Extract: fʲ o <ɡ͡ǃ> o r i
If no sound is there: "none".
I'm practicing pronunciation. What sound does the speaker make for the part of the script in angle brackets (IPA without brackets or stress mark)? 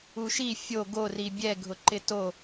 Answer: ɡ